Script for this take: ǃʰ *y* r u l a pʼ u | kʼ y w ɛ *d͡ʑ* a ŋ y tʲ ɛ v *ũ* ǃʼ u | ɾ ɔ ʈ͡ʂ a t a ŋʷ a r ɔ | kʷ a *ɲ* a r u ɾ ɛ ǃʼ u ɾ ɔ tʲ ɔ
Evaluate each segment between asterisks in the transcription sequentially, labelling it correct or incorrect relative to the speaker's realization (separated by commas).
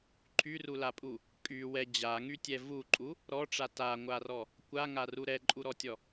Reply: correct, correct, incorrect, incorrect